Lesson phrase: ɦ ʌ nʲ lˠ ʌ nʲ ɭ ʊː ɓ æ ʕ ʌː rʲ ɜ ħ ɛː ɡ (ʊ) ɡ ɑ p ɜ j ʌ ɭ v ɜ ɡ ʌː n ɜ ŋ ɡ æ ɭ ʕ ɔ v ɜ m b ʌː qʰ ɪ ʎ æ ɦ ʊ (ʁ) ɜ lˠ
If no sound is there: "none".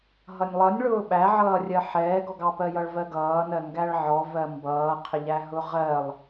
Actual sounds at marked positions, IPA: ɔ, ʁ

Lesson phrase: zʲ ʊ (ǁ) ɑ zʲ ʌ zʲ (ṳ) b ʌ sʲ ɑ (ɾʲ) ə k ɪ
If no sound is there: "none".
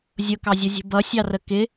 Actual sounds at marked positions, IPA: k, ṳ, r

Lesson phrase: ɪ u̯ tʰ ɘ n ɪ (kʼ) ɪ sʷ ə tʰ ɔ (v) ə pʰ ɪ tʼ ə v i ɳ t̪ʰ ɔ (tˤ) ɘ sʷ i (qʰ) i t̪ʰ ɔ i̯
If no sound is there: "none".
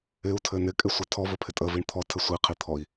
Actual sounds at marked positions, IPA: kʼ, v, tʰ, qʰ

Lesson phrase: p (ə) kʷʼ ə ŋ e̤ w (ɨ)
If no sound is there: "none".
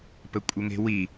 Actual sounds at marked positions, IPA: ə, i

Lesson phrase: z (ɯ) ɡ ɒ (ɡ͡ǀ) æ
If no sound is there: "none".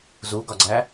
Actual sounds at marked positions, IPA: u, ɡ͡ǀ

